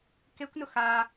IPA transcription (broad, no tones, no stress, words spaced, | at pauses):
kekʷnʊ xa